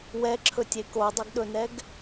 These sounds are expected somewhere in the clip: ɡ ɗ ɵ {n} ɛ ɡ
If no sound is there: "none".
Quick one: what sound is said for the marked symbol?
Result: n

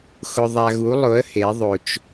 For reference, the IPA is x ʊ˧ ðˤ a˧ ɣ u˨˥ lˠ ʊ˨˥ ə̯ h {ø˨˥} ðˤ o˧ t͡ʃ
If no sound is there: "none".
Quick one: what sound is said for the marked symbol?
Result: e˨˥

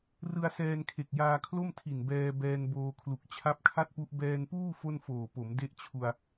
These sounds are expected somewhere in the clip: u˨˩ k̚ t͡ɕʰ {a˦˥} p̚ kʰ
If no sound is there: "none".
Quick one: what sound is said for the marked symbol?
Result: a˦˥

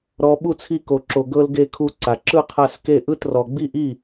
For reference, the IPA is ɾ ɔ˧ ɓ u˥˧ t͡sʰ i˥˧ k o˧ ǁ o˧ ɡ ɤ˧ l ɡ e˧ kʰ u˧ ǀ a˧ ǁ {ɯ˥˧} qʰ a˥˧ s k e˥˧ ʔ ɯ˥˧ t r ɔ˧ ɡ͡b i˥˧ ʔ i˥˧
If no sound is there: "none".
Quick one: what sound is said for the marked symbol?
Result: ɯ˥˧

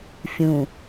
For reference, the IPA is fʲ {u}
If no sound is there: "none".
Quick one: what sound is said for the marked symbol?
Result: ũ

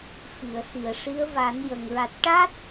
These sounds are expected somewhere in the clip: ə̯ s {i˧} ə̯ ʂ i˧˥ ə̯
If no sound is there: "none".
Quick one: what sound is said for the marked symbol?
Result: i˨˩˨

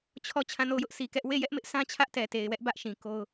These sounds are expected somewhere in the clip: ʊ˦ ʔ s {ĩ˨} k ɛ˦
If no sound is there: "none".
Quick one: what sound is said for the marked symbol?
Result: i˨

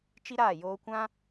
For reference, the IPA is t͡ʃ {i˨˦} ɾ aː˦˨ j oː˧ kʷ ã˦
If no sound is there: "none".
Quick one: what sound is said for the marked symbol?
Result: i˦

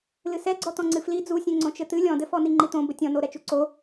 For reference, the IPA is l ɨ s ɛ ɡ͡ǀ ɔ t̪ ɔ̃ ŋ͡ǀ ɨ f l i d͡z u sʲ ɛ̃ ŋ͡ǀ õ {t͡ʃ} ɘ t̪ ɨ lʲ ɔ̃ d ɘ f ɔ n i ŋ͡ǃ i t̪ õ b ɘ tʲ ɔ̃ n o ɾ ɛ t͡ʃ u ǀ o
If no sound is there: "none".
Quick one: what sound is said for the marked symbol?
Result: t͡ʃ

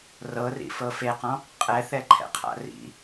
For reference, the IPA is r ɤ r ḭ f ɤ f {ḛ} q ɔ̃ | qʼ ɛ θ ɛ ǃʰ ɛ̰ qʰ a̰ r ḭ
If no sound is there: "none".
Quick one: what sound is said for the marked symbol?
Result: e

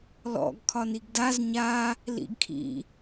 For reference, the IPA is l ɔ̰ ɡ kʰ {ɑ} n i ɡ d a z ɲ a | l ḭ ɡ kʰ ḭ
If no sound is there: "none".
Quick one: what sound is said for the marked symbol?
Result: ɒ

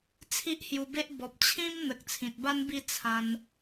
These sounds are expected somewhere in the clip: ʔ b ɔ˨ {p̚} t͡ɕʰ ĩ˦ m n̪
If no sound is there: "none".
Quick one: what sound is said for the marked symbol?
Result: p̚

